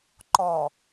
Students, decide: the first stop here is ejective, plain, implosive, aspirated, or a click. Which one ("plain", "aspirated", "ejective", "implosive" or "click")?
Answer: click